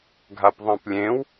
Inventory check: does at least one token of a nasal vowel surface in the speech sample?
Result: yes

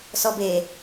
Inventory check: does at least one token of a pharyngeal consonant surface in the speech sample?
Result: no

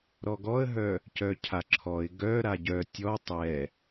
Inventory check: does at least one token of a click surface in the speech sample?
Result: yes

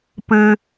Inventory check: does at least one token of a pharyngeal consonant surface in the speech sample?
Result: no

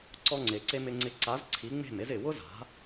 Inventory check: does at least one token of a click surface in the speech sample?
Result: yes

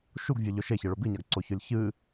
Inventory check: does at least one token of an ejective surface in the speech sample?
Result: no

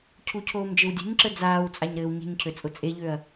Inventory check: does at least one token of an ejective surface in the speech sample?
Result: yes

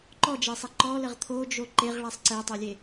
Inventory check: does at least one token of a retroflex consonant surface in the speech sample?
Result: yes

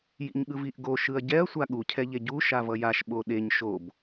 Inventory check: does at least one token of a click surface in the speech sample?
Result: no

